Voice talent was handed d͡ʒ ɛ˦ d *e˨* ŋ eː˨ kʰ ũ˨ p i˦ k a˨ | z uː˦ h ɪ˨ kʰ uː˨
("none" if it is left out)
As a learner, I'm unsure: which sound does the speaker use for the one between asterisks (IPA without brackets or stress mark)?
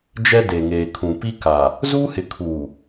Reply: e˨